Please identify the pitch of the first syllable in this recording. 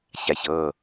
low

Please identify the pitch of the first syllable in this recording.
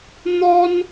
high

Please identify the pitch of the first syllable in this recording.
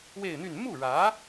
falling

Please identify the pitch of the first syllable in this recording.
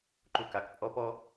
falling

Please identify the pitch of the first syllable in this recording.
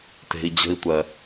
low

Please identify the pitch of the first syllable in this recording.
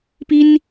high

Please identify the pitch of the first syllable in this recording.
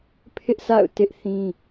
high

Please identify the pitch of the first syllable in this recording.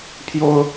high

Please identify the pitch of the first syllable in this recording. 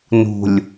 low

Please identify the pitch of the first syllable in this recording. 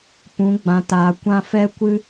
rising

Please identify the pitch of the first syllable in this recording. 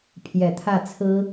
low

